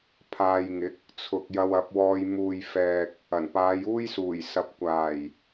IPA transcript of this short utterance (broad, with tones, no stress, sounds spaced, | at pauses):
pʰ aː˧ j ŋ ɪ˨˥ k̚ | t͡sʰ ʊ˨ k̚ j ɐ˧ w ɐ˨˥ p̚ w ɔː˧ j m uː˨ j f ɛː˨ k̚ | ɐ˨˩ n p aː˨˧ j uː˥ j s uː˨˩ j s ɐ˨˥ p̚ kʷ aː˨˩ j